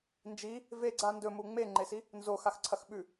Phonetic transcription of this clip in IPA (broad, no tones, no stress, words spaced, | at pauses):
nd͡ʒi | veɡ͡ǀa ndɵmu ŋ͡meŋ͡ǃesi | nzoxaxǀʰɐx ɓʉ